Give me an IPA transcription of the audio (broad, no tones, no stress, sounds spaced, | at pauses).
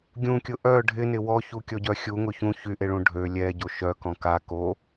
ɡʲ ũ kʲ ʊ ʔ œ ɖʱ ɪ n ɪ w ɔ ç u kʲ ɔ ɟ œ xʲ u ŋ ʊ ç ũ ç y ʔ e ɭ ũ ɖʱ ø lʲ ɛ ɟ o ʃ œ k ɔ̃ k a k o